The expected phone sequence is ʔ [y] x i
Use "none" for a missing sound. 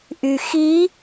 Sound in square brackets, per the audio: y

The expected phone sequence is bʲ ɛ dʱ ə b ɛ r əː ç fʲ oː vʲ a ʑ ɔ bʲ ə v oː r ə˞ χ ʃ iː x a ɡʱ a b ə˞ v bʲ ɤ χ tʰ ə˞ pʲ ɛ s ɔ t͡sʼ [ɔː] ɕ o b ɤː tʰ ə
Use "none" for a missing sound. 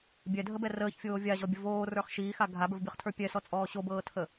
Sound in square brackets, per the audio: ɔː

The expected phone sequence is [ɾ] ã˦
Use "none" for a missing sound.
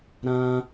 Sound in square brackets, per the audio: ɾ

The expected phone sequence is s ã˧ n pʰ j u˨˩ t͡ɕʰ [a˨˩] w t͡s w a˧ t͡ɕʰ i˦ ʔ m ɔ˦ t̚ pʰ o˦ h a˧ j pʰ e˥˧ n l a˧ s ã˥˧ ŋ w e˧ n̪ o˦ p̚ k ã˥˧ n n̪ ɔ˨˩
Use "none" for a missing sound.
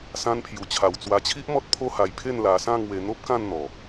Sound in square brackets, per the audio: a˨˩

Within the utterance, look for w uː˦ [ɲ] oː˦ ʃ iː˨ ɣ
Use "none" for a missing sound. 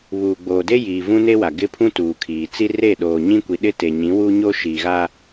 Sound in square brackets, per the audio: ɲ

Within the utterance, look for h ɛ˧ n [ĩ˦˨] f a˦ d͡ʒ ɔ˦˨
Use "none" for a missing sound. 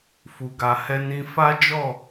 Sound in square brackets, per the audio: ĩ˧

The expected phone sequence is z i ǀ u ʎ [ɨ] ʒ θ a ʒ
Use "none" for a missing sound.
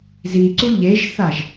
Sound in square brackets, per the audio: e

